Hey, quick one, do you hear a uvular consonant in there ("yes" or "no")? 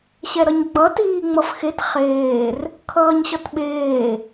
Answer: yes